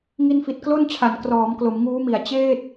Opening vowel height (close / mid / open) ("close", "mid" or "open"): close